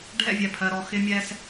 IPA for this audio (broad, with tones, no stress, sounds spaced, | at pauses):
ɖʱ ɛ̰˥˧ vʲ ɛ˧˩ pʰ ɜ˧ ɾ ɔ˧ x ɪ˥ mʲ ɛ˥ s